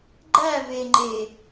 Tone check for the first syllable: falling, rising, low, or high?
falling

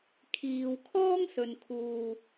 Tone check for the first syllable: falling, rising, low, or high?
low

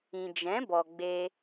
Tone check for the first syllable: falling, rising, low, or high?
low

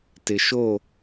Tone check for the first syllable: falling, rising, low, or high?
low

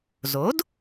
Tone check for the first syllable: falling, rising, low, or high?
rising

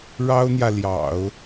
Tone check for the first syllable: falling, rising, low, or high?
high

